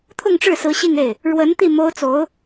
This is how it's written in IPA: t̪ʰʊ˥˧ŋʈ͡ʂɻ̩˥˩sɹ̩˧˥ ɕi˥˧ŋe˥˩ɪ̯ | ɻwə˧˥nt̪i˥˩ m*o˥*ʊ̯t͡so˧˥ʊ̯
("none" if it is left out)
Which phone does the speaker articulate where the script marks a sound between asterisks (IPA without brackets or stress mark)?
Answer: o˥